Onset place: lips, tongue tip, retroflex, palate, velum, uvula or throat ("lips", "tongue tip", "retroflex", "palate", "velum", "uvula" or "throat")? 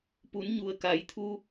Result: lips